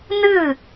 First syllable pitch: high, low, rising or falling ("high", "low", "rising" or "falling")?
falling